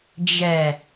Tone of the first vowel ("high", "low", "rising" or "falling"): low